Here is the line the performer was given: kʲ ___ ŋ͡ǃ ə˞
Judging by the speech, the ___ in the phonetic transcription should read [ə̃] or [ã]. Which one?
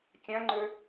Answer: ã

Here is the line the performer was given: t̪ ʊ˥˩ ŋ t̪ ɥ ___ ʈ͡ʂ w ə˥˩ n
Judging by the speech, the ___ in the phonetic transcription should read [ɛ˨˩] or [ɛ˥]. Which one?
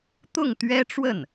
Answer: ɛ˥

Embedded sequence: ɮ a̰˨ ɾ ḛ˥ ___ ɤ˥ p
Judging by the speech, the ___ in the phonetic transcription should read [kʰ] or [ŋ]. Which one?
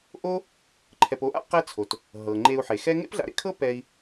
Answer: kʰ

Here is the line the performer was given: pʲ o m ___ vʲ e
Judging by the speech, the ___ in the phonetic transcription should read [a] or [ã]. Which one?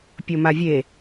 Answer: a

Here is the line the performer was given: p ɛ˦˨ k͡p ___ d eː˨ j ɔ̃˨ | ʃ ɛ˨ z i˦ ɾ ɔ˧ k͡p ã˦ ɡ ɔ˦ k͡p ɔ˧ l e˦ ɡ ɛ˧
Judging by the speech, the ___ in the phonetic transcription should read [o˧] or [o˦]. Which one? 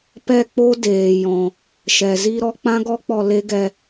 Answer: o˦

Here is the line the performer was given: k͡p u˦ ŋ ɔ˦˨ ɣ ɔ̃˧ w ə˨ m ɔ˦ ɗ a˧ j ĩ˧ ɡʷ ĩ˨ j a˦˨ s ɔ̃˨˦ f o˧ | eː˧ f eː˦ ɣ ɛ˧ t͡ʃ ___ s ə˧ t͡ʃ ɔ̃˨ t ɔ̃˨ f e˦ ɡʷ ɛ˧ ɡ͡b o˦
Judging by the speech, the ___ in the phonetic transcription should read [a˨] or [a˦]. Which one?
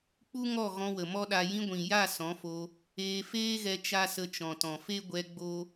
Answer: a˦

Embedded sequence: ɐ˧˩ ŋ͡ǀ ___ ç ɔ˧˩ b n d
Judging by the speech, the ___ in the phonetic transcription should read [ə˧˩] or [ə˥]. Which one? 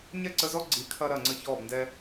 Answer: ə˧˩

